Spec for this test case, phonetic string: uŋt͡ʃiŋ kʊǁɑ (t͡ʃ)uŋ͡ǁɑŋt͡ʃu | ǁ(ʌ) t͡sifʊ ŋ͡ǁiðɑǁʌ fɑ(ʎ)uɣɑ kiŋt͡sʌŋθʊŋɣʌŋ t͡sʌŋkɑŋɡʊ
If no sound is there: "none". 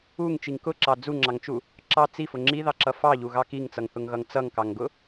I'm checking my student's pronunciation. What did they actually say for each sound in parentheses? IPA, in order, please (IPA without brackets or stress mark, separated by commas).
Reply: d͡z, ɑ, ʎ